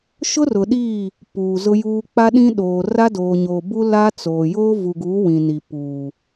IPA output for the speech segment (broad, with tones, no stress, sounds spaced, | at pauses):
ʃ ʊ˦ r ʊ˨ ɗ iː˦˨ | p uː˨ z ʊ˦ j uː˦ k͡p a˦ ɗ ĩ˦ ɗ oː˨ r a˦ d oː˨ ɲ oː˨ b u˦ l a˦ t͡s oː˨ j oː˦ v u˨ ɡ uː˨˦ w ĩ˨ n i˨ p uː˨